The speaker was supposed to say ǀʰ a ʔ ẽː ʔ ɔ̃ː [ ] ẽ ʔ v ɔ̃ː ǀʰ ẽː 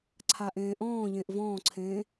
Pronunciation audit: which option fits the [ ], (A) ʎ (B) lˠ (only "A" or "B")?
A